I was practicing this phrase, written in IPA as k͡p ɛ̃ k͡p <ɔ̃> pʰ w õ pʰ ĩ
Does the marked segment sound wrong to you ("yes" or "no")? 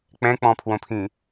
no